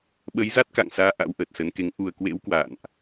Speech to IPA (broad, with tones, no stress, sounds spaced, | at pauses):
ɓ ə˨˦ j z a˦˥ t̚ k a̰˧˨ ŋ s aː˨˦ ʔ a̰˧˥ w ʔ əː˨˩ t̚ s ə˨˦ n k e˨˦ ŋ ʔ u˨˩ ə̯ k w ḛ˧˥ w k w a̰ː˧˨ n ʔ